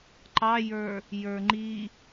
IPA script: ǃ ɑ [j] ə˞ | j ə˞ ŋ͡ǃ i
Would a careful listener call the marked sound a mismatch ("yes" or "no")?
no